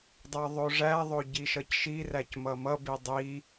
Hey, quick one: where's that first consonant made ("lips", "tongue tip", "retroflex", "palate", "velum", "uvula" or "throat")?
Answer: tongue tip